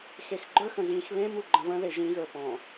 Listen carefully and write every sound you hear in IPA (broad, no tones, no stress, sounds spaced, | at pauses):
x e x ɡ͡ǃ ə˞ x ə̃ ɣ ĩ x β ẽ m u ɡ͡ǃ ə̃ v ə̃ ð e ʒ ĩ ɣ ə˞ p ɔ̃